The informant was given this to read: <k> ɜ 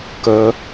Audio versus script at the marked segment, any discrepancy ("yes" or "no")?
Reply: no